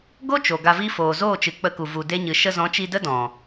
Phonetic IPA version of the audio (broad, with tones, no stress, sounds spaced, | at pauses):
ɡ o˦ t͡ʃ o˨ ɡ a˧ v i˦ f oː˨ z oː˦˨ t͡ʃ ɨ˨ k͡p ə˧ k u˨ v u˨ d e˧ ɲ ɨ˨ ʃ ə˧ z ɔ̃˨˦ t͡ʃ i˧ d ə˦ d ɔ̃˨